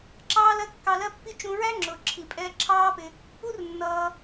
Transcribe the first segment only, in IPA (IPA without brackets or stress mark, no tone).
ǁ